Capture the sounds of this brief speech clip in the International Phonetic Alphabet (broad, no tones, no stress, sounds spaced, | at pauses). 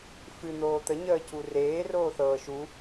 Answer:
f ɨ n̪ oː t̪ ə ɲ əː c u r eː r oː θ ɤː ʃ u